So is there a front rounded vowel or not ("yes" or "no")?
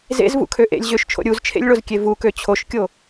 yes